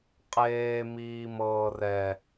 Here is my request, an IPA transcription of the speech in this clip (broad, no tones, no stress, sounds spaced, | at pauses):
qʼ eː m iː m ɤː r ɛ